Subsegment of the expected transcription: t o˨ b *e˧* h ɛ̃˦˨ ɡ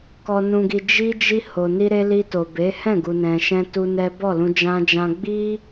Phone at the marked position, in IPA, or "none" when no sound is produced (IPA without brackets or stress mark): e˨˦